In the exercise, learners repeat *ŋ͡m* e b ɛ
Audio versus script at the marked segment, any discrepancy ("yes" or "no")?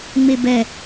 no